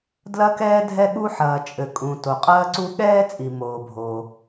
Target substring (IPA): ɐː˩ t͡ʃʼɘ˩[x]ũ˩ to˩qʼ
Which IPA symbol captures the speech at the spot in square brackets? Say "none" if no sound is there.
kʼ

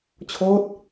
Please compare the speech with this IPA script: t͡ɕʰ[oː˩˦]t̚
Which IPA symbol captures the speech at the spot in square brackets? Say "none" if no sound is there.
oː˦˥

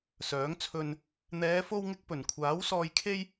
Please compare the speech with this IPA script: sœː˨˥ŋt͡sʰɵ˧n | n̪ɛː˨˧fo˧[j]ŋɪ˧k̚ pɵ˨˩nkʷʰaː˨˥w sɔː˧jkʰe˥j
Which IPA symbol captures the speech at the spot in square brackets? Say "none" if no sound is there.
w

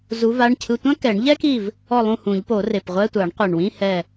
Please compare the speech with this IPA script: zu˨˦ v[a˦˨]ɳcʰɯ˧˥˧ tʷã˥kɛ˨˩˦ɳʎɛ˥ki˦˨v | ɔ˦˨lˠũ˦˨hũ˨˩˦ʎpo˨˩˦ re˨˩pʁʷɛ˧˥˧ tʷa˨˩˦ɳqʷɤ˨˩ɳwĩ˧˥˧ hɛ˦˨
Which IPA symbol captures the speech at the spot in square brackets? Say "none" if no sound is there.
a˧˥˧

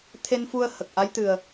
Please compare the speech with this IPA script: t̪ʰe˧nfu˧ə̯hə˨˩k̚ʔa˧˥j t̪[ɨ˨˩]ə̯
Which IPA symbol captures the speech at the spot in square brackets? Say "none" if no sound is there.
ɨ˨˩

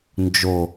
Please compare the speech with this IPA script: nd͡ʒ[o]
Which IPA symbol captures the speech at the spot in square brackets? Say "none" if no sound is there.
o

